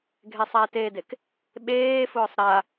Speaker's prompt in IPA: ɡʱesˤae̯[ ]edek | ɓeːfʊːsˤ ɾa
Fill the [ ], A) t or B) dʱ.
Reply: A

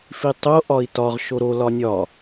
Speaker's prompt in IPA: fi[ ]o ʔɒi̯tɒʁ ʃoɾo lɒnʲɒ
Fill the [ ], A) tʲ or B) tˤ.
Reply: B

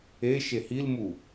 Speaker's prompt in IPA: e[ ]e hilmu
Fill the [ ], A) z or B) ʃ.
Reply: B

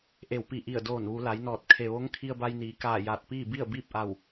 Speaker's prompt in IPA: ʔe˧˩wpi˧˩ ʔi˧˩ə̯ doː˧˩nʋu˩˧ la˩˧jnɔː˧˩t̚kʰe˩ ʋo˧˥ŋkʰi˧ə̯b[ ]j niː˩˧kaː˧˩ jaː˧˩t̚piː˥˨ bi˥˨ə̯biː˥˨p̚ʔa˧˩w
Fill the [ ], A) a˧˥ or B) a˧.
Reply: B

